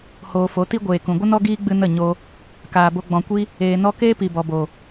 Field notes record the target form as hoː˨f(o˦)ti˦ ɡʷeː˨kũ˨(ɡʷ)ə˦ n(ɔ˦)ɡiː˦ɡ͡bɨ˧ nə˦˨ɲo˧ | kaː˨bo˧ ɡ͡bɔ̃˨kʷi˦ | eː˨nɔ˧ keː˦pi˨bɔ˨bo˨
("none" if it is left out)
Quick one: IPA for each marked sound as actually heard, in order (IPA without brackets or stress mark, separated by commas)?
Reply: o˨˦, ɡʷ, ɔ˦